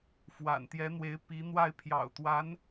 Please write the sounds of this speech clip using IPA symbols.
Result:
fwa̰˨˩n t̪jɛ˧˥n̪we˧˥ɪ̯ pi˧˥n̪wa˥˩ɪ̯pʰjɑ̰˨˩ʊ̯ t̪wa˧˥n

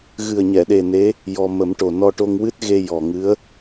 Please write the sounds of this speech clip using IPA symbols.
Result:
ɣɨ˨˩ə̯ɲɛ˨˩˨ɗe˨˩ ne˧˥ | jɔ˧ mə˨˩˦mʈo˨˩ nɔ˧ʈo˧ŋ wɨ˦˥t̚ɣe˧ jɔ˨˩ŋɨ˧˥ə̯

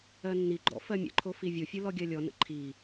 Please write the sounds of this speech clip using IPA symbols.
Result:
ɜnːiɡ͡ǃɔ̰ fɜmʲə̰ǃʰo fivʲofʲɯ lɔɡʲɜlʲɔnə̰ ǃʰi

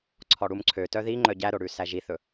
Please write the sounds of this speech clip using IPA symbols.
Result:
ǀʰɔɽumǀʰøtœ ði ŋ͡ǃœɟæɾo ɽʉsæʒiθɵ

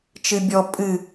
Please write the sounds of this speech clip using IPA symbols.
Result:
t͡ʃɨbʲɔ pʼɨ

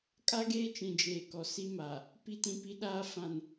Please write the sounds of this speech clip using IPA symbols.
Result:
kʼa˦ɡeː˦t͡ʃĩ˨ d͡ʒeː˨kɔ˨si˦ma˨ | pi˦tĩ˦pi˦ɗaː˦ fã˨n

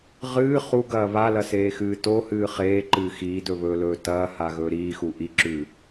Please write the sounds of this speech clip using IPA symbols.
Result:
ʁɨː χuɡɐː βalɐseːxɨː tohɨː χeːǃɨː xiːdɵβɵːlɵː tɐːhaɣɵː ɾiːxu ʔiǁʉ

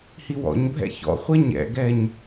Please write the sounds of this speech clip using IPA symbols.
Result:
hiwɔ̰ɲbʱɛ̰ çɔ̰χʷɛ ɲɛ̰ɡɛɲ

